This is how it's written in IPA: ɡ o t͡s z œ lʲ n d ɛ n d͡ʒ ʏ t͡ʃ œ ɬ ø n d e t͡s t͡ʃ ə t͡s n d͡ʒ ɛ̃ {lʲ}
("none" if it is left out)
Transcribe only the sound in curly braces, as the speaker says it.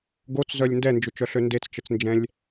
lʲ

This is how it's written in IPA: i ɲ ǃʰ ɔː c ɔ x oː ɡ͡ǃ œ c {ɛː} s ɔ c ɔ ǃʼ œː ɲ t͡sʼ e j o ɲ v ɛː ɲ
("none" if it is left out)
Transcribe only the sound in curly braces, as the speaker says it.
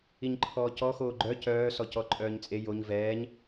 œː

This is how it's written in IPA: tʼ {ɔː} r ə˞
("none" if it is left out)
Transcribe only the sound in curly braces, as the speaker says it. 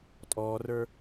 ɔː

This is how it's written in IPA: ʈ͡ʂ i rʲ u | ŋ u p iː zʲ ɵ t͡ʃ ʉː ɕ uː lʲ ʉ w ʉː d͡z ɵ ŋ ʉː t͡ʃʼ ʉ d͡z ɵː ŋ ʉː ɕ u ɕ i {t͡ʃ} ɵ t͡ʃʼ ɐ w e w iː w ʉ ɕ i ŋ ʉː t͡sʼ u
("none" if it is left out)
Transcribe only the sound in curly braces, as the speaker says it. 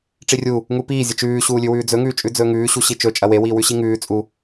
t͡ʃ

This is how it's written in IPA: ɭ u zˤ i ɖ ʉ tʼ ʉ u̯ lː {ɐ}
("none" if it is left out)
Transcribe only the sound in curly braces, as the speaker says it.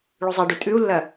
ɐ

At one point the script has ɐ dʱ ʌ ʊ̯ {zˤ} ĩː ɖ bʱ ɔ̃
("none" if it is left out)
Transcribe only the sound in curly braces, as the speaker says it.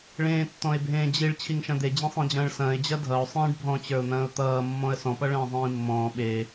sˤ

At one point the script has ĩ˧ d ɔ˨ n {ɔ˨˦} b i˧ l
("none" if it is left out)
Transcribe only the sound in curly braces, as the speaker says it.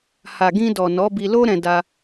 ɔ˨˦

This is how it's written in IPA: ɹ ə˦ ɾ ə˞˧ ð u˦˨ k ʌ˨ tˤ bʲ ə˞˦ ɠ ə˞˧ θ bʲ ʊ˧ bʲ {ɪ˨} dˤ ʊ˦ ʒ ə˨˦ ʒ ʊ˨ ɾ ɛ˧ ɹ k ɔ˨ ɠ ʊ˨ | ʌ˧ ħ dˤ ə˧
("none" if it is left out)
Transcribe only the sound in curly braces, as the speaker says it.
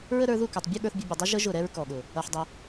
ə˨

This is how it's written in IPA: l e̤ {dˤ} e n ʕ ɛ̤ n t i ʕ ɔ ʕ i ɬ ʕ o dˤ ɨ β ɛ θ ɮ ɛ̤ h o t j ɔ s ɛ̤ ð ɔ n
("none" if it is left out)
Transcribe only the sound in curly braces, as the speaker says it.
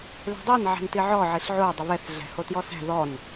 dˤ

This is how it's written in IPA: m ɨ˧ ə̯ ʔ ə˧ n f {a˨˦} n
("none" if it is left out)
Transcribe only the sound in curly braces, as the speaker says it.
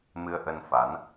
a˨˦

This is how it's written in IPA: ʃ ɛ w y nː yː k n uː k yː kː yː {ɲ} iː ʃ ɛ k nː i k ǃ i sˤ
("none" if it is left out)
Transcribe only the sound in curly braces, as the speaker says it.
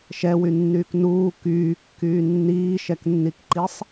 nː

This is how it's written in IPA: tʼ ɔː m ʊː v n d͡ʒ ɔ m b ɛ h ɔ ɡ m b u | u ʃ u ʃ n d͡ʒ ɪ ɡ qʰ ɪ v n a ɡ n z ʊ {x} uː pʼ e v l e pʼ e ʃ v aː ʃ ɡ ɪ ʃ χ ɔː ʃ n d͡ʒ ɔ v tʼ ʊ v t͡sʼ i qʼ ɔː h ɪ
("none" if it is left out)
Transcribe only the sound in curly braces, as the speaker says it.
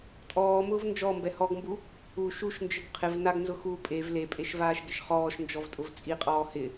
x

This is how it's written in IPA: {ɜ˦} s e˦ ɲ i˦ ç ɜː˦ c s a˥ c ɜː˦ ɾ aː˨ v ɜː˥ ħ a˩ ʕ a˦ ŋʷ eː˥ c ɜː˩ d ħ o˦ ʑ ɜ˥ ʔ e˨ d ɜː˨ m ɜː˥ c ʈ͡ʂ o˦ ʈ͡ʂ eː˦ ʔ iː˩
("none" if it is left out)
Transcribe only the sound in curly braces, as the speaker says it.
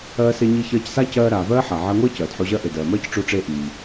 ɜː˦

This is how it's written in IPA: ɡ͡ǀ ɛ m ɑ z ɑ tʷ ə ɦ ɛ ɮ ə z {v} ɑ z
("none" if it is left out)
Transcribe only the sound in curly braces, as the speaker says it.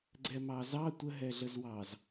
w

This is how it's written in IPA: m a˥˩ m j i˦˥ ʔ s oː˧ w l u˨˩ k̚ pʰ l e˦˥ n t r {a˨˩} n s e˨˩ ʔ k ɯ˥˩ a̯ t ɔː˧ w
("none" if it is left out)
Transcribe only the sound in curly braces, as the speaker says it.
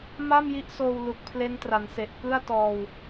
a˩˦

